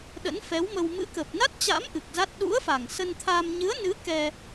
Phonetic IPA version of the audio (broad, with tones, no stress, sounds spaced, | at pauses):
ɗ ə̰˧˥ n f ɛ˨˦ w m ə˧ w m ɨ̰˧˥ k ə˨˩ p̚ n a˦˥ t̚ t͡ɕ a̰˧˥ m ʔ ɨ˨˩ k̚ z a˦˥ t̚ ɗ ṵ˧˥ ə̯ f a˨˩ ŋ s ə˧ n t̪ʰ a˧ m ɲ ɨ˨˦ ə̯ n ɨ˨˦ k ɛ˧